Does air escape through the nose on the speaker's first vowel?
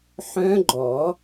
yes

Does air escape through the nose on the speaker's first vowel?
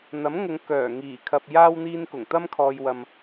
no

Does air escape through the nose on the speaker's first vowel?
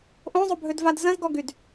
yes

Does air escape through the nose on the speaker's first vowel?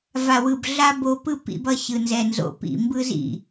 no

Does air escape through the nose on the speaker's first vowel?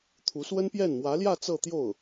no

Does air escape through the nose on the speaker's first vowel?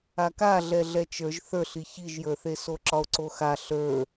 no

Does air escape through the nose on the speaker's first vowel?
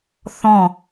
yes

